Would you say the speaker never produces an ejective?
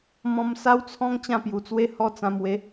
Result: yes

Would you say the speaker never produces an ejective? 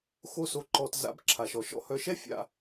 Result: yes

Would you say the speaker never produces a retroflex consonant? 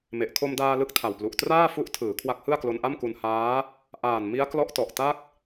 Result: yes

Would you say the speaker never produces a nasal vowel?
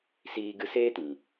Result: no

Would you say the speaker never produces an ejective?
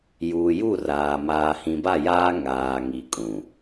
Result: no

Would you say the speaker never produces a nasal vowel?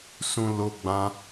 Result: no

